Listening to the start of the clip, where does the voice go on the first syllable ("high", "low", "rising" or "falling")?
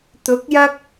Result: rising